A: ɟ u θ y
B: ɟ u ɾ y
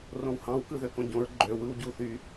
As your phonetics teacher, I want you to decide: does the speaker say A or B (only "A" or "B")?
A